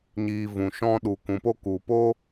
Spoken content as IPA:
ɲiː˨ vũ˨ʃɔ̃˧ ɗu˨kũ˨po˧ ku˨po˦

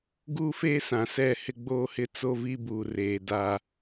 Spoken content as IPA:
ɡuː˦feː˦sã˨ sɛ˦˨hɪ˦ ɡ͡boː˦hɪ˦t͡so˦vi˦ buː˨reː˨ da˦

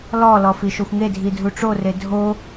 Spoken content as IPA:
lɔlɔ fiʃoxʷŋedʱi dʱuʈ͡ʂore dʱo

